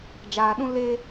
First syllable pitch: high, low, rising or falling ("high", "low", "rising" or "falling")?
low